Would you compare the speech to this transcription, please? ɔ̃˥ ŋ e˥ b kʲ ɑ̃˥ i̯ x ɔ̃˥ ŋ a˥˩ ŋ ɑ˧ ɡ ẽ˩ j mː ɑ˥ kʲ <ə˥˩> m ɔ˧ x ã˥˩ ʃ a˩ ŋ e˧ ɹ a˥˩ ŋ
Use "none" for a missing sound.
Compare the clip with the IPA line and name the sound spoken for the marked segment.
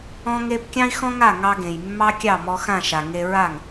ɑ˥˩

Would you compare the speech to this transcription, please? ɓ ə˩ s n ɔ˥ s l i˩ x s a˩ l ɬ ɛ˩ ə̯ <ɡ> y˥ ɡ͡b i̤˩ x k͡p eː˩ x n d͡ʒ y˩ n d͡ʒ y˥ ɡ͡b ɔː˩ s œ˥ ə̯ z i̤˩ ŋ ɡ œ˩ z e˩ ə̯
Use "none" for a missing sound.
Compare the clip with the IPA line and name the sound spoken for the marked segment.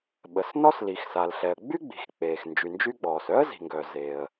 ɡ͡b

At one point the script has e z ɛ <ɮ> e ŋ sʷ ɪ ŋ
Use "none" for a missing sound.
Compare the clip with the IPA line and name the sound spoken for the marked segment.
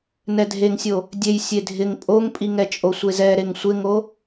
ɾ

